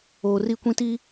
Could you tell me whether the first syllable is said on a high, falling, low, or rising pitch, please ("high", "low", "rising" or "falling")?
low